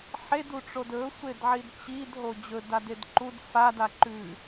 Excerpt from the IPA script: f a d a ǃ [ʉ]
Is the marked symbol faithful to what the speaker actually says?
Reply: yes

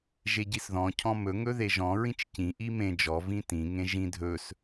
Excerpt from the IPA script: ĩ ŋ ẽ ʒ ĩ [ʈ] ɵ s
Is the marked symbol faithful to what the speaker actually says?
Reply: no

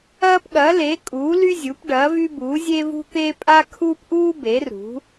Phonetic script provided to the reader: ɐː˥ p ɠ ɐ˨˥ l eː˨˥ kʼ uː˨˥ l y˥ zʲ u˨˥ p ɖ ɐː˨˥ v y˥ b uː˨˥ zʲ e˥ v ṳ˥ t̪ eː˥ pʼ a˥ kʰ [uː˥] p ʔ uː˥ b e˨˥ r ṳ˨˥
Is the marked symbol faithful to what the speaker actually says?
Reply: yes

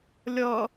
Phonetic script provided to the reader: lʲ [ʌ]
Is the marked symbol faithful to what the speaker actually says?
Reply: yes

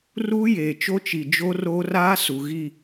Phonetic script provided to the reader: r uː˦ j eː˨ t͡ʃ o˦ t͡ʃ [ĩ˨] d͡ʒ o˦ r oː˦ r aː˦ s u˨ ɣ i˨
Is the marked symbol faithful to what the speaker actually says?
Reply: no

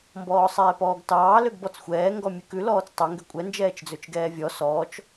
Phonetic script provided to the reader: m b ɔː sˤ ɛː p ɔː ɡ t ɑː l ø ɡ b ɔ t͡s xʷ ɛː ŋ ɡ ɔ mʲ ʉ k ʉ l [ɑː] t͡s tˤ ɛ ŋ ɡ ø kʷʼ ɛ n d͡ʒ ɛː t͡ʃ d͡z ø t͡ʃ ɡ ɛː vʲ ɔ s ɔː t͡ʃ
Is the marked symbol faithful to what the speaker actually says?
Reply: no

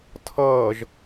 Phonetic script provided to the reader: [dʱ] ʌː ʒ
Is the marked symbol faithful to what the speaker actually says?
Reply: no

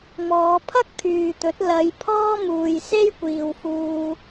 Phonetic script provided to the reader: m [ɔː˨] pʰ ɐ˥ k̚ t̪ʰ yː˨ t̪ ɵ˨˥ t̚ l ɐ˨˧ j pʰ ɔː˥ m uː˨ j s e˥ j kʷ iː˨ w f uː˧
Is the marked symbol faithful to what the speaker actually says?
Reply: no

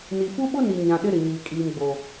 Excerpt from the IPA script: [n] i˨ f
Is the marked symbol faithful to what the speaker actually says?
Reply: yes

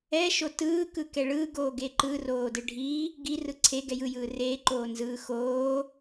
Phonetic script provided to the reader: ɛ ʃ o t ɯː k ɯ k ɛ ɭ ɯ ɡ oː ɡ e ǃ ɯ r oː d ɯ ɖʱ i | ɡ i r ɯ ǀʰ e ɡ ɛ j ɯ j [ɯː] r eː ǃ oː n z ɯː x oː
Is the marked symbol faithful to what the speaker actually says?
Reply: yes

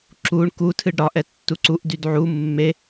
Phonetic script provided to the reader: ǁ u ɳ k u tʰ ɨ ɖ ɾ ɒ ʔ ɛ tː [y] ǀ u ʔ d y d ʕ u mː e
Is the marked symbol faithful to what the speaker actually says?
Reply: no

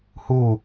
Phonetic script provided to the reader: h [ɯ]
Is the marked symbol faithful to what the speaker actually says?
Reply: no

